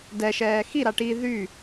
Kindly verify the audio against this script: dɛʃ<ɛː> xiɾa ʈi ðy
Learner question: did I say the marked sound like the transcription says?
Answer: yes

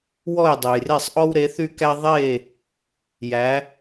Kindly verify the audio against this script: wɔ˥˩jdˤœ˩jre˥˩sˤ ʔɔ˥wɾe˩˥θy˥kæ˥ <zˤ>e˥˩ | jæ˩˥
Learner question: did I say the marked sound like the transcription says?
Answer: no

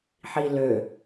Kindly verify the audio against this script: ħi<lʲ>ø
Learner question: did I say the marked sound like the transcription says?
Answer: no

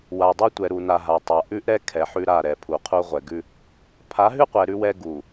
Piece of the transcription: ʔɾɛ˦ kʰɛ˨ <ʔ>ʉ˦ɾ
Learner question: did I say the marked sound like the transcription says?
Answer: no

